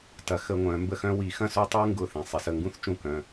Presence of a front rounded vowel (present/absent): present